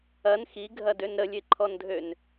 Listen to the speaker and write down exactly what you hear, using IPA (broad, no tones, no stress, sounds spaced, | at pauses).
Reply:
ɐ n x i ɡʱ ɐ d ø n ɾ ə lʲ e ǃʰ ɔ n dʱ ø n